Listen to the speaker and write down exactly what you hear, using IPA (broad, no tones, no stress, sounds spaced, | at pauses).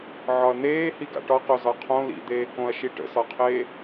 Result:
ʕ ɒ ɐ̯ n̪ eː h i ɡ a̰ ʈ ɒ q o z ɒ qʰ õ l ḭ d̪ eː k õ ɐ̯ ʃ i ʈ ə̰ s ɒ qʰ eː